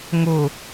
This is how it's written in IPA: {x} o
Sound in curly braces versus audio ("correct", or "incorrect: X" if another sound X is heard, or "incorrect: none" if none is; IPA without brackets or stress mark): incorrect: ŋ